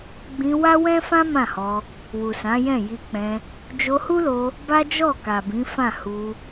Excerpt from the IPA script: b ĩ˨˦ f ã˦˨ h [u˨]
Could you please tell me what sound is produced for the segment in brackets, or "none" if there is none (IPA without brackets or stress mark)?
u˧